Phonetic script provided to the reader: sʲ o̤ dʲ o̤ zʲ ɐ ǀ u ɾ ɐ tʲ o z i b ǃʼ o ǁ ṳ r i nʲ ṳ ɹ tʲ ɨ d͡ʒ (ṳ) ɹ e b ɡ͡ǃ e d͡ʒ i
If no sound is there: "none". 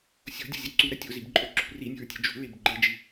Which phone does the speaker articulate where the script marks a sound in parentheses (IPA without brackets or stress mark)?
ṳ